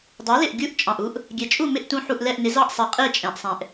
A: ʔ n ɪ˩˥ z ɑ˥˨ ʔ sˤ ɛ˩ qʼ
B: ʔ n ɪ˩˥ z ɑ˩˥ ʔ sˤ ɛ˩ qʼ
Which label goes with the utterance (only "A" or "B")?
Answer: A